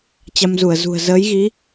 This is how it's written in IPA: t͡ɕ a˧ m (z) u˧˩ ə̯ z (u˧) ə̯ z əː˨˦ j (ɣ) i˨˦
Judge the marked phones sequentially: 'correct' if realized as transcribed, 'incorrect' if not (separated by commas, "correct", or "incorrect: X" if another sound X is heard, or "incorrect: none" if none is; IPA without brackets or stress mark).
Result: correct, incorrect: ṳ˨˩, correct